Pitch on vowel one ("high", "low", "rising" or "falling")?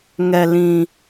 low